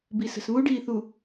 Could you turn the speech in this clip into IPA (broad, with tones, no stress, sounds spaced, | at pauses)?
b i˨ s ə̤˨ s β u˦ ɖ iː˨ θ u˨